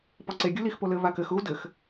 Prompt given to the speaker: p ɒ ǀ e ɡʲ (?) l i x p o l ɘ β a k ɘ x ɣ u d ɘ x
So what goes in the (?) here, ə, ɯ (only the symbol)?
ɯ